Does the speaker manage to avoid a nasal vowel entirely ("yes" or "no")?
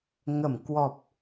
yes